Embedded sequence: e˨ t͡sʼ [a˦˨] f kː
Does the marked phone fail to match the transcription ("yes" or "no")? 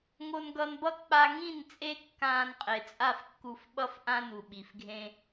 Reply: no